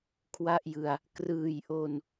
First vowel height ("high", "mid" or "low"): low